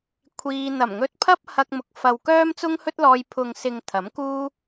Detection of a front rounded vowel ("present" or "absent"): present